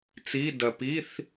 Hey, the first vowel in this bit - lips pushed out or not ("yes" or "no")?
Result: no